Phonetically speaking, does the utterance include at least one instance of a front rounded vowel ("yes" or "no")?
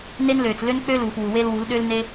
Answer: yes